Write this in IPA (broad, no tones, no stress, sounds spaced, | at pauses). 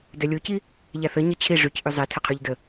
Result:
d ɛ lʲ o c i | ʎ a θ ə ɲ ə t͡ɕʰ i ʐ y c ʔ y zˤ e tʰ ə qʰ y ʎ d ə